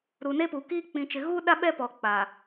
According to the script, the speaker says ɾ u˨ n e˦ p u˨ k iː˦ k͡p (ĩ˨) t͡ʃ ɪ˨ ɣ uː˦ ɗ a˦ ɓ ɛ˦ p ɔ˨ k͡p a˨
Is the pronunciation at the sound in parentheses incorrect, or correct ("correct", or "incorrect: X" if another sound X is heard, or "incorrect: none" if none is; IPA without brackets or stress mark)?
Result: correct